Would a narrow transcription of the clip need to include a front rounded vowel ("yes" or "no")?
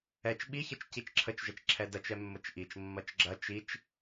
no